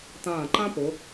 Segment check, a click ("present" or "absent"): present